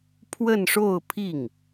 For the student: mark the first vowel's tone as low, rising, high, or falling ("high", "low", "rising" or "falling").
falling